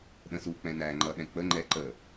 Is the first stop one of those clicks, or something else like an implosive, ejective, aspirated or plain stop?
implosive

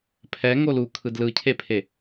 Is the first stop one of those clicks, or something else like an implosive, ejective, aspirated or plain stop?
aspirated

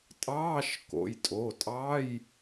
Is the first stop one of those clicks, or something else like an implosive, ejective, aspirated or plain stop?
ejective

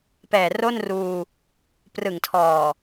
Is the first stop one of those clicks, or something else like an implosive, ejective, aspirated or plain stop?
plain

